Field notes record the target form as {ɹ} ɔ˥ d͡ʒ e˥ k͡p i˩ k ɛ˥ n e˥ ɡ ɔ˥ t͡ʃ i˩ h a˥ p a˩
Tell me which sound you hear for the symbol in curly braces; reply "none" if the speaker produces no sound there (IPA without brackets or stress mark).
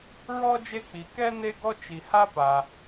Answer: ɹ